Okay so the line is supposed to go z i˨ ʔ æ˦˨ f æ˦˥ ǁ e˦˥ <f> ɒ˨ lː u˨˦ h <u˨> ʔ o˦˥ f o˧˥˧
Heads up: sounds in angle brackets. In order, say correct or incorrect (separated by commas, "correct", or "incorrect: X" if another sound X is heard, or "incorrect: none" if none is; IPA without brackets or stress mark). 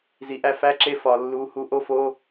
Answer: correct, incorrect: u˨˦